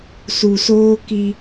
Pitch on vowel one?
low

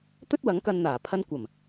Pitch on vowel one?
high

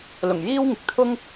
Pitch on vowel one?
low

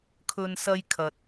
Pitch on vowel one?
high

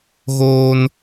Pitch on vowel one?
high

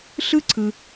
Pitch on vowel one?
high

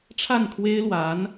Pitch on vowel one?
falling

